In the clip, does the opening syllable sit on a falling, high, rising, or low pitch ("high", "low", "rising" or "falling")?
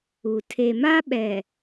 low